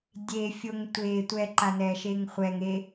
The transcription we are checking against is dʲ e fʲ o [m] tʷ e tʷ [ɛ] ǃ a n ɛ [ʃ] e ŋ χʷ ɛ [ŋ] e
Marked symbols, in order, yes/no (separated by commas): no, yes, yes, yes